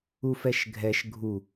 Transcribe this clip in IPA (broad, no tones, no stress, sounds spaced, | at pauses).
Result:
u f ɛ ʃ ɡʱ ɛ ʃ ɡʱ u